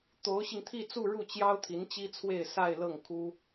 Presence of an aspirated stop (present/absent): present